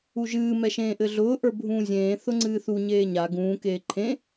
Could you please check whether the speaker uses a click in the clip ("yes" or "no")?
yes